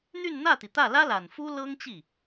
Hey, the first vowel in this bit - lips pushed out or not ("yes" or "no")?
yes